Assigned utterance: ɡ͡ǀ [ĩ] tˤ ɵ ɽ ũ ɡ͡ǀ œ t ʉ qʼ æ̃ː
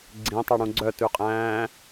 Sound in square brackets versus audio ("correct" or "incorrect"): correct